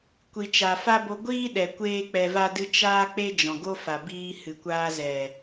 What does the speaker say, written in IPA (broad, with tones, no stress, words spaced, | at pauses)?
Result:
kʷi˨t͡ʃa˨fa˦bo˧ ɡʷiː˦ɗɛ˨ kʷeː˦k͡pɛ˧va˦dɨ˦ t͡ʃaː˦k͡pe˦ d͡ʒɔ̃˨ɡo˦fa˨ biː˦ hɨ˨kʷaː˧zɛ˨